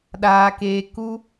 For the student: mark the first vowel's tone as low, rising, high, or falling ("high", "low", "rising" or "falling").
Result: low